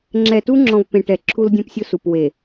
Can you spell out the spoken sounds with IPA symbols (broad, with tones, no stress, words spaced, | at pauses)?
ŋ͡ǁɛ˨tu˦ ŋ͡ǁɔ̃˨v pẽ˨ʈɛ˨ǁʰu˦ldʲõ˦p sʲʊ˦su˨p we˨